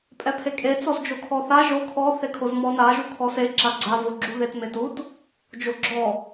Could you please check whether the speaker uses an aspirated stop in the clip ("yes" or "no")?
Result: yes